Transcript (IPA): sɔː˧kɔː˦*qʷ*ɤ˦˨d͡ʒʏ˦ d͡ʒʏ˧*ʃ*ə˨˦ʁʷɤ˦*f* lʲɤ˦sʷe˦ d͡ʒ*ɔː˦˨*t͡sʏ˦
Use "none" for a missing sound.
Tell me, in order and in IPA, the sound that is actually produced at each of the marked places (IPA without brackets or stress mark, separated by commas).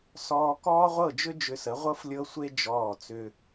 ʁʷ, s, f, ɔː˦˨